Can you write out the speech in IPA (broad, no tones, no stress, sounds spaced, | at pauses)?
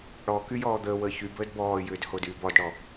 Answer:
ɽ ɔ k y j ɔː d̪ əː w əː ç y b əː d b ɔː j ʏː d h o d yː b ɔ d ɽ ɔ